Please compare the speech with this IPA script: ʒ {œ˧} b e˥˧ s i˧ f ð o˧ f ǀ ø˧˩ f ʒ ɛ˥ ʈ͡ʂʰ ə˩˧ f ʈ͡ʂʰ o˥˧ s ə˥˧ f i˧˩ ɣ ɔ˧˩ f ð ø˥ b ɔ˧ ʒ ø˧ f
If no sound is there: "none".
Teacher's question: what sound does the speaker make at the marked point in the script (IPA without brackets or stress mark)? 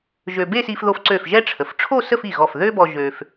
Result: ø˧